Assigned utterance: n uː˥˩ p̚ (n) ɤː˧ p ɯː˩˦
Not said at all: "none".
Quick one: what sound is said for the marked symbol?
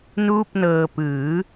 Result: n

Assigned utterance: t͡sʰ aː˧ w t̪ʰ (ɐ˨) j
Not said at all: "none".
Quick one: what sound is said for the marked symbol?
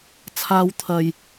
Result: ɐ˨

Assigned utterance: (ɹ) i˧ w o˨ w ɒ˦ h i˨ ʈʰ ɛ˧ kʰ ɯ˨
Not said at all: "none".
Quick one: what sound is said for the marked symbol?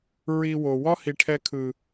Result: ɹ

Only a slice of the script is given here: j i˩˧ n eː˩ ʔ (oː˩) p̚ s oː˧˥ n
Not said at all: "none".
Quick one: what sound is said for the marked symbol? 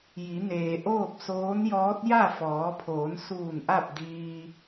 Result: oː˥˨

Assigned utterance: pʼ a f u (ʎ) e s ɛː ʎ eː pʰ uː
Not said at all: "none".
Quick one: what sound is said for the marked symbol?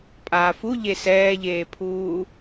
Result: ʎ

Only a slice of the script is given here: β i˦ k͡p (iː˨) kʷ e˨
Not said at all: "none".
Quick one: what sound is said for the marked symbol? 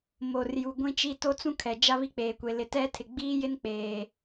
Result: eː˨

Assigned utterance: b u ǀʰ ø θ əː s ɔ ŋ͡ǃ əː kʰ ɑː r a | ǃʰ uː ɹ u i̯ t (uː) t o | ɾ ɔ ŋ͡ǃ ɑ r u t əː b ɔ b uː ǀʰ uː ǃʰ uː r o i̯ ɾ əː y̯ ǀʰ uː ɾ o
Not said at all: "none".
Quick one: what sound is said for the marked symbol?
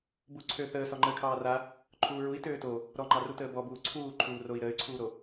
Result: øː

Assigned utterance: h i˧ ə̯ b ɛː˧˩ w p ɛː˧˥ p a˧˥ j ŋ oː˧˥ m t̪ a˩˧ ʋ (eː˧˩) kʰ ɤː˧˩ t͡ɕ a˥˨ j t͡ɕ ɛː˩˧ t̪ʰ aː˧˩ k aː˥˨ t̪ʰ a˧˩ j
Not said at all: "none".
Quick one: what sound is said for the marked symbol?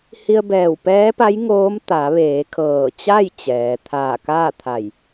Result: eː˩˧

